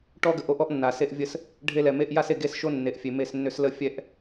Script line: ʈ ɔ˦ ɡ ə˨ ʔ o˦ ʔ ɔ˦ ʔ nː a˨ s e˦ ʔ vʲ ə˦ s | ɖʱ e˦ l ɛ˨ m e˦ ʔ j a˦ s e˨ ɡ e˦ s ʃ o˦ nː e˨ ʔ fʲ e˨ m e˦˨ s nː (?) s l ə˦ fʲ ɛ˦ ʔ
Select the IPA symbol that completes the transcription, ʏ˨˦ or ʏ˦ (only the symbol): ʏ˦